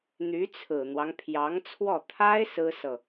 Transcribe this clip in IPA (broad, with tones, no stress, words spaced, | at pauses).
n̪y˧˥t͡sʰɹ̩˨˩n̪wɑ˦ŋ pʰjɑ˧˥ŋt͡sʰwɔ˥˩ t̪ʰa˥ɪ̯ sɹ̩˥sɤ˨